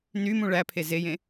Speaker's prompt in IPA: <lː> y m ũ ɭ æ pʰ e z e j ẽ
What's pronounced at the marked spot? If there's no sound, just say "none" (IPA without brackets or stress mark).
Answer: n